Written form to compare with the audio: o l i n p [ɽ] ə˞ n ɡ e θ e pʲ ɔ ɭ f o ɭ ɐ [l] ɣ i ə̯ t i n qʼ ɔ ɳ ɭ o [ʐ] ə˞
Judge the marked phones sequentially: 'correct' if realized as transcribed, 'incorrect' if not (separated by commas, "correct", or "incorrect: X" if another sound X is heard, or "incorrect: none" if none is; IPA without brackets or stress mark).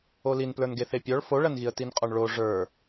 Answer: incorrect: l, incorrect: n, correct